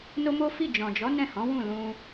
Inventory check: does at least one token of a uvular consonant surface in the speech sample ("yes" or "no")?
no